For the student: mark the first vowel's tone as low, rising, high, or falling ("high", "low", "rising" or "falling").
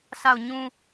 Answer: falling